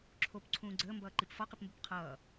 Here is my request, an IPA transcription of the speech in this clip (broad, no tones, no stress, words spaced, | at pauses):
ǁʰop ǀʰũːɡ͡ǀəːmbʌːǃip fɒqipmbʊp qʰʌː